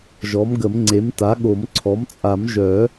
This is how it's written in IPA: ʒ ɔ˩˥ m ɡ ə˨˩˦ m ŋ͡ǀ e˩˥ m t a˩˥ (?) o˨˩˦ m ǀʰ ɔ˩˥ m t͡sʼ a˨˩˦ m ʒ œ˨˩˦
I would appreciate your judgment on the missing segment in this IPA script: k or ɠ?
ɠ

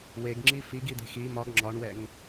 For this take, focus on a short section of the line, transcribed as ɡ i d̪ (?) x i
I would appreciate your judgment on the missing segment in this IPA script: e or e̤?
e̤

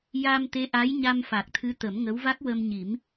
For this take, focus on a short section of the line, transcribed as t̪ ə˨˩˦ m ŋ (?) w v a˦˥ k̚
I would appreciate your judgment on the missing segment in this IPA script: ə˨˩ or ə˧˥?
ə˧˥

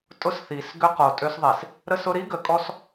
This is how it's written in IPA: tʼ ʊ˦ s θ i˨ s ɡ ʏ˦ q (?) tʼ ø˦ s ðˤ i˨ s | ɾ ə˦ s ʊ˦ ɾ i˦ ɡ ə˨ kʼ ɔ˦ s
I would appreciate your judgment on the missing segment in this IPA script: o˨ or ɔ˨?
o˨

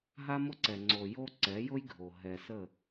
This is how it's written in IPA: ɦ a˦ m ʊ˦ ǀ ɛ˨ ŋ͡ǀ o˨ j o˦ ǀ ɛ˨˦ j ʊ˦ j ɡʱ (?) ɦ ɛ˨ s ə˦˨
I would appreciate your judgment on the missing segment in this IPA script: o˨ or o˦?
o˨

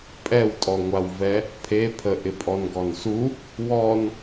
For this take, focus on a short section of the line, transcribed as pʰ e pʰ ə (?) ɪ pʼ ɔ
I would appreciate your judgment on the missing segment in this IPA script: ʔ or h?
ʔ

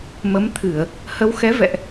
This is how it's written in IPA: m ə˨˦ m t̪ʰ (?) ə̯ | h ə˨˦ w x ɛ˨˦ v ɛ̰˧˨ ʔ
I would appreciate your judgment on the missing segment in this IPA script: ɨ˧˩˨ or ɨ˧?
ɨ˧˩˨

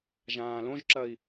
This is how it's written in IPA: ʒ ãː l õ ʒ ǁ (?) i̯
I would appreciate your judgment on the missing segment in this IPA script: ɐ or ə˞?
ɐ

